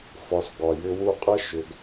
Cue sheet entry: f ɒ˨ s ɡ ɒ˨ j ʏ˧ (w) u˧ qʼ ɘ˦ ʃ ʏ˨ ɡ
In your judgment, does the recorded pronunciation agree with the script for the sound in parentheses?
yes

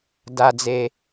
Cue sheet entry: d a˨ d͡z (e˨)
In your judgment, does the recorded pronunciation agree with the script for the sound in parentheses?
yes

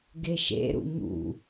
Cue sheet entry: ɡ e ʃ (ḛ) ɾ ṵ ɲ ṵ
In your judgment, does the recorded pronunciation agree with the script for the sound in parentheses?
yes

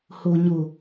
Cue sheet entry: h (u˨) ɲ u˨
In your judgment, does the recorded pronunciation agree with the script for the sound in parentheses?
yes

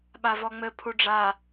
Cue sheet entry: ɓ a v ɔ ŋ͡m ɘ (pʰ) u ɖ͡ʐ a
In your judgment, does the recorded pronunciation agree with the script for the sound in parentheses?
yes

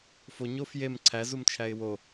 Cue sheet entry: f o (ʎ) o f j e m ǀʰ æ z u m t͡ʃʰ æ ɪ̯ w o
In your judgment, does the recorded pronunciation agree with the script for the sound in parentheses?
no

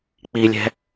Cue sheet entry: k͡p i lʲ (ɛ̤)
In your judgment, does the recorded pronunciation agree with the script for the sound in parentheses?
yes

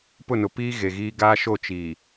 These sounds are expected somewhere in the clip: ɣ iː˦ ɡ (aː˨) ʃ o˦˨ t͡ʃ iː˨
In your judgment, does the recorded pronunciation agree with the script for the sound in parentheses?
no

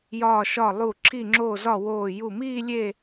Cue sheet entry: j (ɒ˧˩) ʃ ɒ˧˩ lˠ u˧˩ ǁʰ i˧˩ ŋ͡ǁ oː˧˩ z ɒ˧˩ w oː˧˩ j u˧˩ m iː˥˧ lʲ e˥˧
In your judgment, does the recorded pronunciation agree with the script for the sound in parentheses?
no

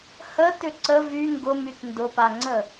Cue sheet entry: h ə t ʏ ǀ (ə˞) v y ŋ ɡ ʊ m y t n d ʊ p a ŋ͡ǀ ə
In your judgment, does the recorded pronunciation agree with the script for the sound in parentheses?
no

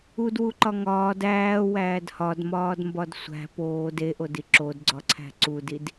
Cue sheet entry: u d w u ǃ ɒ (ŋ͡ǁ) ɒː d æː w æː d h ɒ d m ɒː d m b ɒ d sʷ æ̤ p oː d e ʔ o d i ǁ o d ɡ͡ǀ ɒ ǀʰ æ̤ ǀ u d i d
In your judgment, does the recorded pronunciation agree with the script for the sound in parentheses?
no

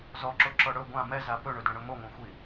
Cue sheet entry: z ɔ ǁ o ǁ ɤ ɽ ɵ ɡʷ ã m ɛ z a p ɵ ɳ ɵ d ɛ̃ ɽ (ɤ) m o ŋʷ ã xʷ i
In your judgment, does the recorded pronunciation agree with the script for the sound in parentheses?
no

